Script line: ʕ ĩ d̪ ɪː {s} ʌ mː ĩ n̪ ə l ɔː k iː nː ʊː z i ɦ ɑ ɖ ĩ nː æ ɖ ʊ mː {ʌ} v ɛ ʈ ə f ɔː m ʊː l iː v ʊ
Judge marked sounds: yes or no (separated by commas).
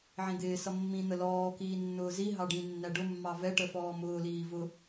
yes, no